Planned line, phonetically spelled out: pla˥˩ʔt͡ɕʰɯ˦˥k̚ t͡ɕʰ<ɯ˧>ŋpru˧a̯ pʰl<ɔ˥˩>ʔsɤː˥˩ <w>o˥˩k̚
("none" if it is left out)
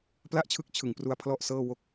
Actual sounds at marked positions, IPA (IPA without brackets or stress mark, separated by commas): ɯ˨˩, ɔ˥˩, w